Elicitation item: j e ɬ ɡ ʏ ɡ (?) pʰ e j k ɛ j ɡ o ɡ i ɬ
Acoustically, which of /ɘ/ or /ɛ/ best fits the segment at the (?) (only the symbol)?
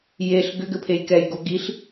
ɘ